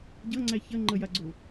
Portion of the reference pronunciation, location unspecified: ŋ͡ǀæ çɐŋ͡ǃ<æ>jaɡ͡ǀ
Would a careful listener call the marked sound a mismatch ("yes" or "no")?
yes